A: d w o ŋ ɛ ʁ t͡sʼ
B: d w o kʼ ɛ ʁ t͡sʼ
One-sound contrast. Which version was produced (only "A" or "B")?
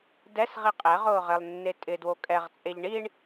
B